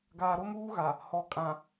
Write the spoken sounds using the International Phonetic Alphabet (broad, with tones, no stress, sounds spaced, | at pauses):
ɡ aː˨ ɾ o˦ m uː˦ ɣ a˨ | h ɔ˨ kʼ ã˨